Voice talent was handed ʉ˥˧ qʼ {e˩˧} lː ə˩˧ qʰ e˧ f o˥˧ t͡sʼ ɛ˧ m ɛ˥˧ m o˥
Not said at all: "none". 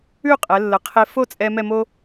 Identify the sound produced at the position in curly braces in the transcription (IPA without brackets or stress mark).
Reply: ɛ˩˧